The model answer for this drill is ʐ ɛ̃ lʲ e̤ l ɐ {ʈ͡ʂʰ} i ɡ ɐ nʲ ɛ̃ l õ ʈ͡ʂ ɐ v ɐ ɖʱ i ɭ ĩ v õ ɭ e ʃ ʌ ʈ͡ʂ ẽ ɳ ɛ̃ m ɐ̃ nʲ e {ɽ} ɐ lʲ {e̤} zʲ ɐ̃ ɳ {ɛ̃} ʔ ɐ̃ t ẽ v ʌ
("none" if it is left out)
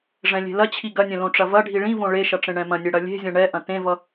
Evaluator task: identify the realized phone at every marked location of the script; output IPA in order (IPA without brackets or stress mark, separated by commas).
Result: t͡ɕʰ, ɽ, e̤, ɛ